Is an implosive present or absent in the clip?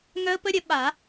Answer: present